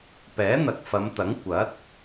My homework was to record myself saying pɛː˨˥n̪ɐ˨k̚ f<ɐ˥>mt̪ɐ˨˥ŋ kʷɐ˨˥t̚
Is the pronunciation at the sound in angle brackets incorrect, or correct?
incorrect